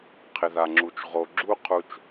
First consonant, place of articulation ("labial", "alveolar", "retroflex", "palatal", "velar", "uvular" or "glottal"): uvular